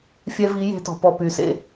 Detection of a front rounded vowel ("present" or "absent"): present